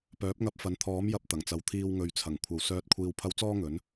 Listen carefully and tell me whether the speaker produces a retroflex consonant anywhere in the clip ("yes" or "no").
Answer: no